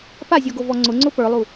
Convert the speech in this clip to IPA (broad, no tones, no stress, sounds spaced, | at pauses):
p a zʲ ɔ ɡ o v ɔ ŋ͡ǀ ʊ ŋ͡ǀ ʊ p ə˞ lˠ u